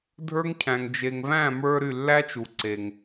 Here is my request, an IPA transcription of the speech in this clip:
dʱ ə˞˥ ŋ cʰ æ̃˩ ŋ d͡ʒ e˩ ŋ v æ̃˥˩ m ə˞˧ ɾ y˥˩ lː æ˥ t͡ʃ u˩ ǀ e˩ ŋ

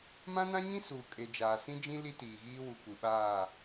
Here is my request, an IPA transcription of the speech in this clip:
m ã˦ n ã˦ ɲ ĩ˦ s uː˨ kʼ e˨ d͡ʒ aː˨ s ĩ˦ d͡ʒ ĩ˦ l i˦ t iː˨ ɣ iː˦ w u˨ kʷ i˨ ɓ aː˦˨

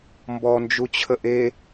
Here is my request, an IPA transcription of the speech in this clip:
m b ɔ n d͡ʒ u t͡ɕʰ ə ʔ e

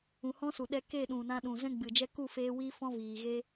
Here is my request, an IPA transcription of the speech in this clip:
ũ˨ h ɔ̃˦ s u˨ ɗ ɛ˧ k e˦˨ ɗ ũ˨ n ã˧ ɗ ũ˨ z ɛ̃˦ ɡ͡b ɨ˨ d͡ʒ ɛ˦ k u˦˨ f eː˧ w i˦ f ɔ̃˦ v iː˨ ɣ e˦

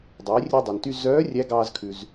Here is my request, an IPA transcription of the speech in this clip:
dˤ eː˩˧ rʲ ø˧ dˤ ɛ˩ n t y˧ z œː˧˥ rʲ æ˧˥ ɡ ɑː˧ z kʰ ʉ˩ z

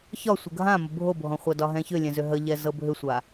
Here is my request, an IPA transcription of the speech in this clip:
ç ɒ sʷ ə ɡʱ ã m ə bʱ o bʱ ɔ̃ χʷ a d ɒ ɦ ɛ̃ ç ʏ lʲ ɛ̃ z ʏ ɦ ə ʎ ɛ z ɤ bʱ ʏ sʷ a

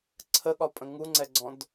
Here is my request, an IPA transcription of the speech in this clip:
ǀʰ ə ɠ ɒ pʼ ə̃ ŋ u ŋ͡ǀ ɛ ɡ͡ǀ ɔ̃ d

